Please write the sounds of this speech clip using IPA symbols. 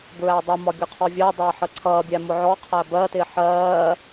b ɹ æ dˤ ʊ m ɒ ɡʲ ʊ qʰ ɔ vʲ ɜ dˤ ʌː ħ ə ǀʰ ʌː bʲ æ m ʊ ʕ ɔ qʰ æ b ɜ t ɪː ħ ɜː

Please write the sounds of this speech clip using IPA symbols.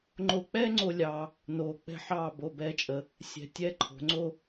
ŋ͡ǃ o˧ k͡p ɛː˥ ŋ͡ǀ o˧ lʲ ɑ˧ | n oː˧ k͡p ɛ̤˥˧ ħ ɑː˥˧ b o˧˩ b ɛː˧ t͡ʃʼ ə˩˧ | sʲ ɛ̤˧˩ tʲ ɛː˥ ǃʰ o̤˩˧ ŋ͡ǀ o˥˧

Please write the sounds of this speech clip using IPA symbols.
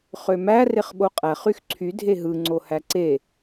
χ ø m æ r e χ ɓ o qʼ æ χ y x ǀʰ y dʱ e ɦ ɯ ŋ͡ǀ o h æ ǀ e

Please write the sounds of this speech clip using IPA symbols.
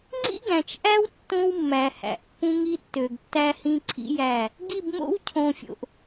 ŋ͡ǀ ḭ˦ ɡ æ̃˨ t͡ʃ ʔ æ˦ w tː õ˦ w mː æ˨ h æ̰˨ ʔ pː ũ˦ ŋ i˦ tː ø˨ ɡ tː æ˦ h ĩ˦ ǀʰ ḭ˦ j æ˦˨ | ɡ i˦˨ b m o̰˦ w cʰ õ˨ fʲ o̰˨ ʔ

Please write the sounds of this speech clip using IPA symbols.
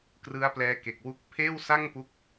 k r ɯ˦˥ a̯ p l ɛː˦˥ k e˨˩ k̚ w u˦˥ k̚ pʰ eː˥˩ w s a˥˩ ŋ p u˦˥ k̚

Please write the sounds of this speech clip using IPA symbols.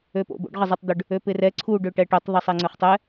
ø p o̰ b o̰ ɖ ʁ ɪ zˤ ɛ tˤ d̪ ʏ ɖ | ø p ɪ r ɛ ǀʰ u ɖ ø ʈ ɛ ʈ ʏ tˤ ðˤ ɛ sˤ ɛ ŋ͡ǀ ʏ χ tˤ ɛ

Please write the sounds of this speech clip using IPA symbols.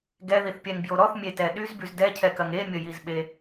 ɡ ɛ ð i θ pʲ ɛ ŋ b j o ɾ ɔ θ mʲ e t ɛ ɗ y z b y z d ɛ cʰ ɛ k ɐ ŋ e mʲ ə j i z ɓ e

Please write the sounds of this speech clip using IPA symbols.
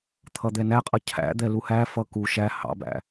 t̪ʰ ʌ d̪ ɛ n æ qʼ ʌ cʰ æ̰ d̪ ɛ l u h æ f ʌ k u ʃ æ h ɑ̰ b æ̰

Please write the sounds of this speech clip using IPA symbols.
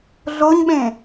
ɮ o ɲ ɓ ẽ

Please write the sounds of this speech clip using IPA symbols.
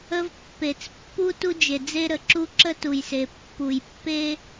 ə˦ v pː e˨ t͡s pː u˦ t u˦ d͡ʒ e˨ d͡z e˦ ɾ ə˨˦ ǁ u˦ ǁ ə˦ t u˨ j s e˨ pː u˨ j pː e˦

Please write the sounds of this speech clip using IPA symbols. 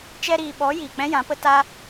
t͡ʃ ɛ˧ ɾ iː˨ ɓ ɔ˨˦ j iː˨ k͡p ɛ̃˦ j ã˨˦ p ə˦ t a˦

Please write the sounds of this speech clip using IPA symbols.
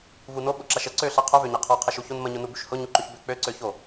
v u n o ɓ ʊ ǁ a ʃ ə ǀ ø ɬ a qʰ œ v ø ɲ ɛ qʰ ɔ qʰ ə ʃ u ç o n m ə ɲ ʊ n u b y ʃ h ʊ ɲ u ǃ ʏ ç b ʏ k͡p ø ǀ ø ç o

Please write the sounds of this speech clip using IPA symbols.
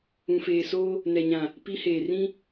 ũ˨ f eː˨ s oː˦ | n ɛ˨ ɲ ã˨ | p i˦ h eː˨ r ĩ˦

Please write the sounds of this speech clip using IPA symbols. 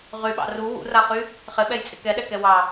ʁ y ɓ ɑ̰ r u w ṵ r a χ y | χ ɪ ɓ ɛ j t͡sʼ ɪ k ɛ ɗ ɛ k ɛ w ɑ

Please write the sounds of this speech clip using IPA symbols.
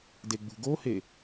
d e ɡ͡b ṳ ɡ o h e

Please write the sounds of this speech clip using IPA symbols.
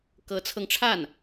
k ɤ˧˥ t͡sʰ ɤ˧ ŋ ʈ͡ʂʰ a˥˩ n

